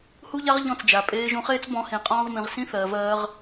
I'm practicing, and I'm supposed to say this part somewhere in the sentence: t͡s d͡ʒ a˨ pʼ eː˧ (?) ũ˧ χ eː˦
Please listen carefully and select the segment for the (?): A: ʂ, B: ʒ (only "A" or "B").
B